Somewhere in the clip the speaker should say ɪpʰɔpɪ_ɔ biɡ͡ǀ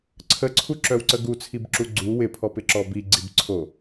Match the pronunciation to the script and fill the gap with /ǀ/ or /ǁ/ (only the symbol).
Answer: ǁ